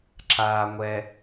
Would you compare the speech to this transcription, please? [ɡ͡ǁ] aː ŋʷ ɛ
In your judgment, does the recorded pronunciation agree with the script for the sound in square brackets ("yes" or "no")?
no